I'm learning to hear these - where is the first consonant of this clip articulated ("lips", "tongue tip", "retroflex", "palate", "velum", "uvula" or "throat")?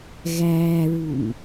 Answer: velum